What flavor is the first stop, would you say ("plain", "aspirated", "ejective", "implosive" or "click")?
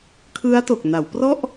aspirated